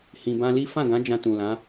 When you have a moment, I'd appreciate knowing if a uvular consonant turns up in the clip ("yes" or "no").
no